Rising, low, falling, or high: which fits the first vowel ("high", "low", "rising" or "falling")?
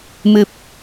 low